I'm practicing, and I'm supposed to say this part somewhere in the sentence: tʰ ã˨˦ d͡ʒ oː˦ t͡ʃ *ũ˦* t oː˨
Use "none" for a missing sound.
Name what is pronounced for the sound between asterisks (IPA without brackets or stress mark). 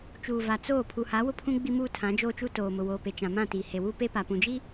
u˦